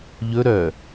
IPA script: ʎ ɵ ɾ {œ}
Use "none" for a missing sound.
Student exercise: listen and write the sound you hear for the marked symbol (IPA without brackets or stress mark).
œ